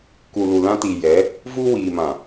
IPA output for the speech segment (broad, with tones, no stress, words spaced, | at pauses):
ku˨lu˨lã˦ti˨ jɛ˨˦ | vu˦wiː˨mã˨